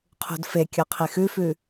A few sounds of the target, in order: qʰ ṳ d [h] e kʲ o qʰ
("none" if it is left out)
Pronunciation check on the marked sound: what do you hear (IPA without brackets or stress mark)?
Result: f